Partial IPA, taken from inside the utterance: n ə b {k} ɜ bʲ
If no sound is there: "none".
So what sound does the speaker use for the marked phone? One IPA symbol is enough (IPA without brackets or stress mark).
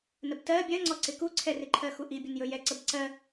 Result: t